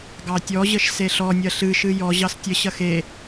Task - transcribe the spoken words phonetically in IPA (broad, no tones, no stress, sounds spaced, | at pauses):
ɡ ɑ tʲ ɔ ʑ ə ʃ s e ɬ ɔ nʲ ɐ ɬ ɨ ʃ ɨ j ɔ ʑ ɑ s tʲ ə ɕ ɐ x e